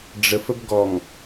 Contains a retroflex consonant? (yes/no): yes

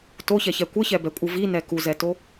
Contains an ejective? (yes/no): yes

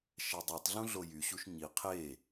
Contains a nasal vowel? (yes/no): yes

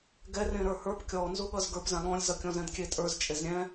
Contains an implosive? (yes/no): yes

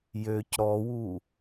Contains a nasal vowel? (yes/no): no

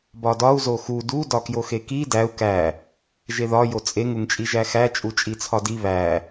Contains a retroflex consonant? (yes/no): no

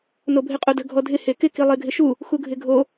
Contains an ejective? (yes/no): yes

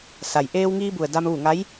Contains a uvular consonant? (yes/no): no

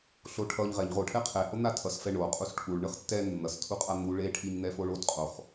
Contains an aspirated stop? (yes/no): yes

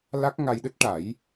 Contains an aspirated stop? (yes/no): no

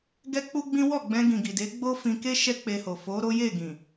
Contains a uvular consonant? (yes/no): no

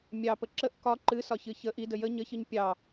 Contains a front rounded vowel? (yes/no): no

